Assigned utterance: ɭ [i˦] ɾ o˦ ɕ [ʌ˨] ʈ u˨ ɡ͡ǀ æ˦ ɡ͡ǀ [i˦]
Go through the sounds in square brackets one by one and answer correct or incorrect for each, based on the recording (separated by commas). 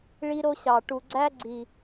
correct, incorrect, incorrect